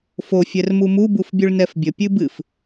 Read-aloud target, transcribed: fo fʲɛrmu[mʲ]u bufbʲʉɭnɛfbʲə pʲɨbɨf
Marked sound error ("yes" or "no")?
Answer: yes